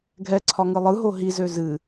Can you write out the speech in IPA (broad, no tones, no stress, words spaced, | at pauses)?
ɡʱɛǀʰɒ ŋɯlˠɯɦo ɦizø zɨ